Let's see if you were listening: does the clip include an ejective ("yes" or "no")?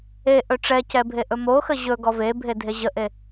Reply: no